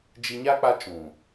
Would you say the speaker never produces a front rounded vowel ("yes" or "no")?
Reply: yes